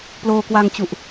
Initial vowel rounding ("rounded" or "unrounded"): rounded